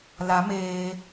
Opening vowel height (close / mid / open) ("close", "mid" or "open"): open